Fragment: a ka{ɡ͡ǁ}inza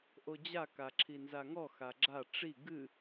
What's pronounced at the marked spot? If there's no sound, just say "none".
ǁʰ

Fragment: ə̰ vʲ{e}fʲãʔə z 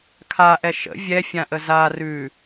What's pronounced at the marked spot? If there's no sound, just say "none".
ɛ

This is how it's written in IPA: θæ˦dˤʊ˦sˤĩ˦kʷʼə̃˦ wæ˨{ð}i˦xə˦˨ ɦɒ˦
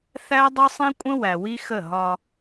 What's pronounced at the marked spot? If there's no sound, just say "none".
w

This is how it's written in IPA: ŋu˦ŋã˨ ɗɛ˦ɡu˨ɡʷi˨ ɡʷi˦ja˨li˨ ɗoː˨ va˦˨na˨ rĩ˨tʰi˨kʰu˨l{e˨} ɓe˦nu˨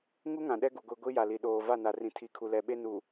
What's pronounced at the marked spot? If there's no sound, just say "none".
ɛ˨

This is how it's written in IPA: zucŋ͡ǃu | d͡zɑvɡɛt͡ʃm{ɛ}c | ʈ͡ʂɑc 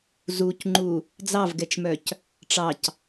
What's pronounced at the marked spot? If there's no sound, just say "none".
œ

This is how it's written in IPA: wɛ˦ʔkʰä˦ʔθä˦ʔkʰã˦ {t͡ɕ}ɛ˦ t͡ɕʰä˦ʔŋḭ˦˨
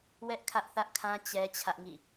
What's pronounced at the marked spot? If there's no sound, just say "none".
t͡ɕ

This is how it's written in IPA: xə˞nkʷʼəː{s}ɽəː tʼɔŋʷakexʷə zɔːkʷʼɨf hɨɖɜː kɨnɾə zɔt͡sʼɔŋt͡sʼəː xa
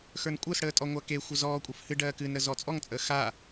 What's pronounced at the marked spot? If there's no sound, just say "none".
s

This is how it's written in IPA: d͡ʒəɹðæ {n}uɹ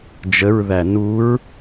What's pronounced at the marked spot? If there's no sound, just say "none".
n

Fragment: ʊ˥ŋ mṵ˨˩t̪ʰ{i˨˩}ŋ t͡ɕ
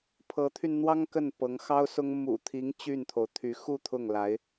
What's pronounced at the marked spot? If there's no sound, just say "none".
i˧˥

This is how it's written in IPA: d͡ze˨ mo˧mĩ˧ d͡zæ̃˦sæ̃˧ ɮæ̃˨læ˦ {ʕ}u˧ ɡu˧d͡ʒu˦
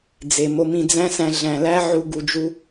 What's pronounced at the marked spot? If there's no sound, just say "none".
ʕ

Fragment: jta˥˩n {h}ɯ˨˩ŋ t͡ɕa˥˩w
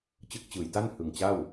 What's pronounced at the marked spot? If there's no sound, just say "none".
h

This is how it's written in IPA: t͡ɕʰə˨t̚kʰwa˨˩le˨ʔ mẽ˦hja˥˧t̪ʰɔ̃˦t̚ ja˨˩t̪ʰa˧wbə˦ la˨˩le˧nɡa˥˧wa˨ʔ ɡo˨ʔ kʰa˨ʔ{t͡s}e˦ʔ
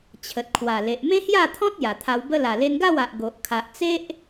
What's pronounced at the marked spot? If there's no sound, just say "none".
t͡s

